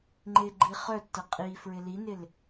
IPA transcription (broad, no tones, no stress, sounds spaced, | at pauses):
ŋ͡ǃ ɪ ɡ͡ǃ i χ œ tː ə qʼ i f ɹ ɪ l i n ɪ l